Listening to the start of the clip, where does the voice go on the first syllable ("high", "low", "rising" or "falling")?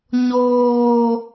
low